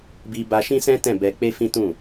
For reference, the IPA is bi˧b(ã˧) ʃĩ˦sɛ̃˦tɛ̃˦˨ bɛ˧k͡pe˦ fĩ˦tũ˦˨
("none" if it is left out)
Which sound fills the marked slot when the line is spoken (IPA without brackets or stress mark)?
a˧